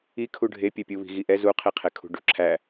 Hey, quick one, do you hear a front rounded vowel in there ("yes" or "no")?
yes